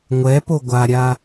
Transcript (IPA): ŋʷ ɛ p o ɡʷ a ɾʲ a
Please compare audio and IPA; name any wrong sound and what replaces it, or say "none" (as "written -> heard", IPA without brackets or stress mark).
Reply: none